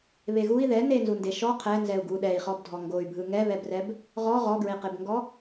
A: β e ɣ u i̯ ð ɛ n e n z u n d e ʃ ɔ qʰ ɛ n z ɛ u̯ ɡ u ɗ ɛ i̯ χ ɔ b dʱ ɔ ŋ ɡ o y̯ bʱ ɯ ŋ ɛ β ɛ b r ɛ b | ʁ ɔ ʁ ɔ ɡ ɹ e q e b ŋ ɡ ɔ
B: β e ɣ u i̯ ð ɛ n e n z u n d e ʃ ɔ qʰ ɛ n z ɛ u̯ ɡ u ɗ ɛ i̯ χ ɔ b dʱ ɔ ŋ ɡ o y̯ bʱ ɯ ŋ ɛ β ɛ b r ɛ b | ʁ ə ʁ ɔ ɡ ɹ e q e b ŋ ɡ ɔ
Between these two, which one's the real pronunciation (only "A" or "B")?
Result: A